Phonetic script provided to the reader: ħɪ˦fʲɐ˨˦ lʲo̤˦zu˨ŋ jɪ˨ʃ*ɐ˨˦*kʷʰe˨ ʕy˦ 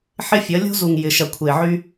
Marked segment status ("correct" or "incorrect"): incorrect